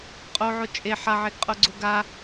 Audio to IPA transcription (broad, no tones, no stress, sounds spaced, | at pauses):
qʼ o ʕ o t͡ʃʼ e ħ a ʕ e ɡ qʼ o ɡ͡ǀ o ɡ a